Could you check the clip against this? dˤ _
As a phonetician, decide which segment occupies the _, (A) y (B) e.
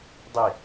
B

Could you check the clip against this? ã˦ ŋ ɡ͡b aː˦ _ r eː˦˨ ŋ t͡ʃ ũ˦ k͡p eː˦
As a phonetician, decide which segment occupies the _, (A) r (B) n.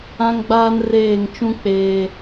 B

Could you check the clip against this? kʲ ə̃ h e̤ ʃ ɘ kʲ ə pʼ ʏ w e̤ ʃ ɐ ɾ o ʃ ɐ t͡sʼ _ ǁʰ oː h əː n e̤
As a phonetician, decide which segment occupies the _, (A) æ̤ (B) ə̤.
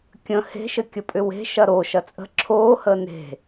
B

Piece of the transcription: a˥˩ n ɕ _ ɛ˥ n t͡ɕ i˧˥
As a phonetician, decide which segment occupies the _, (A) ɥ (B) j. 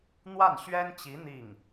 A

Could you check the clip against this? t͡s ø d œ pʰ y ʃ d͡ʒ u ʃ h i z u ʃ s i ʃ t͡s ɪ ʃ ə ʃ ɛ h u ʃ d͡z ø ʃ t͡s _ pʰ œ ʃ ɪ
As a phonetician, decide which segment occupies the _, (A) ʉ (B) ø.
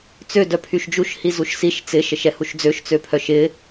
B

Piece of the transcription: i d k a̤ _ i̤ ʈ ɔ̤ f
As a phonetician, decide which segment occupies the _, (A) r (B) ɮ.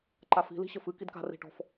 A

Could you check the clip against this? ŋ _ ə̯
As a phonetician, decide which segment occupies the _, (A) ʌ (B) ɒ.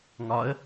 B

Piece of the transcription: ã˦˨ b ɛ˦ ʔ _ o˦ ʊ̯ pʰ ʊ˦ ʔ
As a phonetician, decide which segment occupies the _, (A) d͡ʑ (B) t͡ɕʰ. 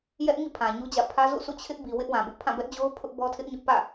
A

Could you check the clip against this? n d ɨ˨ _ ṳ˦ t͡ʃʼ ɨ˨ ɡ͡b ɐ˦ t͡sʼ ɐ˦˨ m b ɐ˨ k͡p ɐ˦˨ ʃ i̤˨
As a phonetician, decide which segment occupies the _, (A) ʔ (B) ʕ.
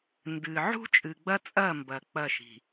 B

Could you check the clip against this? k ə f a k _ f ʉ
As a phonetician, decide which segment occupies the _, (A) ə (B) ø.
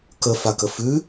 A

